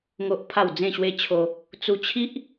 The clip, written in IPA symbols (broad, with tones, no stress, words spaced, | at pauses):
ŋo˦ʔpʰa˥˧w d͡zẽ˥˧ɕwe˦t͡ɕʰo˧ | t͡su˧t͡ɕʰi˦ʔ